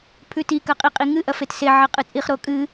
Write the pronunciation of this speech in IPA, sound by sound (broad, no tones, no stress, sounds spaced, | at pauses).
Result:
pʰ ʉ t i k ɐ qʼ i qʼ i ŋ ɨ ʔ ɐ f e t s e ʕ ɐ qʼ ɨ t͡sʼ i χ ɾ o kʼ ɨ